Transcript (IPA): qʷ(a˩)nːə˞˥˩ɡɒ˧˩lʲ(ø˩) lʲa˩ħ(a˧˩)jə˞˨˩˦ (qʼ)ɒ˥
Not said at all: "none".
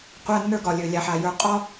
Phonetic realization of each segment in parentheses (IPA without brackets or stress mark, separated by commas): a˧˥˧, ø˩, a˩, qʼ